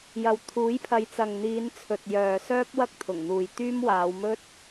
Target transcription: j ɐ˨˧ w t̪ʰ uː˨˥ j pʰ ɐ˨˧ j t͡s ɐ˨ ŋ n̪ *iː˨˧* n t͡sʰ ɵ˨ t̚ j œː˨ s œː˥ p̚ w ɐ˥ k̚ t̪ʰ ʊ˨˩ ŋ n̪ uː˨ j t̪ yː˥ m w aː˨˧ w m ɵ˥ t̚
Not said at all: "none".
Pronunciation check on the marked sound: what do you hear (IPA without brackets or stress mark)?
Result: iː˨˧